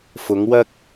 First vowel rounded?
yes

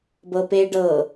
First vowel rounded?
no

